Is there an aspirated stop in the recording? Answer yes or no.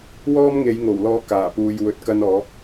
no